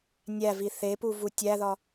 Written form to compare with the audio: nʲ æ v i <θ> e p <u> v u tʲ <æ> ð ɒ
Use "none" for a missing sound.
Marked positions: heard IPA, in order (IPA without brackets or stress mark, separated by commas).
θ, u, æ